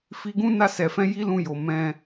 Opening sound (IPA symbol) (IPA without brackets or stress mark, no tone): f